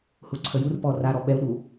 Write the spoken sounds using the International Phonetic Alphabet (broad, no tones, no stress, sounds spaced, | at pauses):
h u ǀʰ ə j u r p ɔ r a ɾ ɔ ɓ ɛ u̯ ɗ u